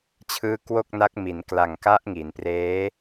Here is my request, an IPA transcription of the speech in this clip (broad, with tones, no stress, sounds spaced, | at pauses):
t͡ɕʰ ɯː˦˥ k w o˥˩ k̚ n a˦˥ k̚ m i˩˦ n k l a˨˩ ŋ k a˦˥ ʔ ŋ i˩˦ n p r eː˦˥